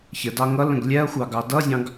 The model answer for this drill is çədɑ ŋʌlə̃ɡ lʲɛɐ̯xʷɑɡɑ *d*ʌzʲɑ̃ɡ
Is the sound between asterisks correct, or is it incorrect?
correct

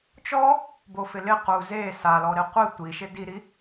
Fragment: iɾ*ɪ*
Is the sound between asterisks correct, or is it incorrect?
incorrect: i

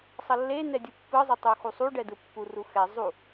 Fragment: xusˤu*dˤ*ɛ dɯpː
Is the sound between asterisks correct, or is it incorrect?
incorrect: ɖ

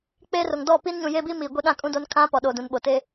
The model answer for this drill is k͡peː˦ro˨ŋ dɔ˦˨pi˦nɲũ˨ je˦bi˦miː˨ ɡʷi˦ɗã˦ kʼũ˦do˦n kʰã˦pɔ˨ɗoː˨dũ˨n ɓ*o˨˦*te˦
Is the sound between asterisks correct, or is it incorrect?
incorrect: o˨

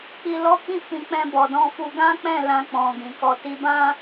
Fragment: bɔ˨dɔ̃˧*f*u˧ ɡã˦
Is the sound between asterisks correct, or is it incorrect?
correct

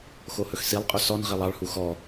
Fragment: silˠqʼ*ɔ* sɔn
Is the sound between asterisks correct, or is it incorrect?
incorrect: ɵ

